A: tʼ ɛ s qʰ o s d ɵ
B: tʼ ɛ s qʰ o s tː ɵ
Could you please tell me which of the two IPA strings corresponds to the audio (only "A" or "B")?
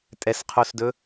A